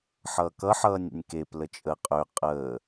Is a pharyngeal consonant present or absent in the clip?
present